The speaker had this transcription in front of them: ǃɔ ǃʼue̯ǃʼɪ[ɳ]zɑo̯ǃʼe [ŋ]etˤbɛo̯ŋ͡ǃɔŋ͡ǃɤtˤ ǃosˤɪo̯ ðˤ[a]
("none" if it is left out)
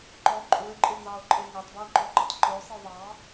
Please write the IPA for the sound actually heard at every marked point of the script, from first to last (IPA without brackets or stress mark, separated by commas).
n, ŋ, ɑ